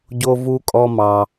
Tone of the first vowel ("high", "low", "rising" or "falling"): high